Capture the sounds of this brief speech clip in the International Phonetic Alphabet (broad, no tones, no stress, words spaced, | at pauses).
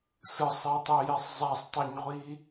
sɯsˤɜtˤejɛsˤ zˤasˤtˤɛɲʁʷi